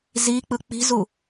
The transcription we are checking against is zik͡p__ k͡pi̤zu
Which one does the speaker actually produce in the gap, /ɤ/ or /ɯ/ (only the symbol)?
ɯ